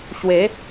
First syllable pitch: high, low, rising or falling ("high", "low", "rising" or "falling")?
rising